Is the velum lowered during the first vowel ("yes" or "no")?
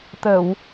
no